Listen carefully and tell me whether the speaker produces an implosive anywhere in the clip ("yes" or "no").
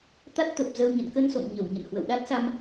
yes